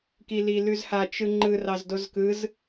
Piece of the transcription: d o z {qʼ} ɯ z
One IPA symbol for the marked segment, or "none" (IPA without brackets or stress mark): k